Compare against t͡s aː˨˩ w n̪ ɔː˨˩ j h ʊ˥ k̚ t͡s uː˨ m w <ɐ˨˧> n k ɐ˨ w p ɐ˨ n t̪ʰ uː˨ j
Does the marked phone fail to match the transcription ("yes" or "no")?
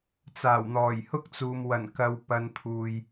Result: yes